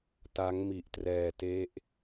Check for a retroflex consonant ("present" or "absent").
absent